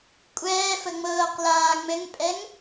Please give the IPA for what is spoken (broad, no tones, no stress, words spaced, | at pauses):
kʷʼɛːfə ŋ͡mɤːqlaː ŋ͡mɘŋpʼɛŋ